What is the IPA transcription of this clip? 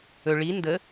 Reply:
ɵ ɭi ndə

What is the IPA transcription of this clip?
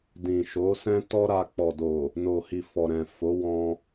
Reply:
dĩ˨ʃo˨˦sɛ̃˦ tɔ˦ɾa˧ k͡pɔ˨do˨ | no˨hi˨ fɔ˨ɾɛ̃˨fo˨˦wɔ̃˧

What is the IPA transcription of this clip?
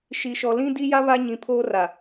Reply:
ʃi˨ʃɔ˨ lĩ˦di˦ja˦ βa˦ɲĩ˨pʰoː˦ra˨

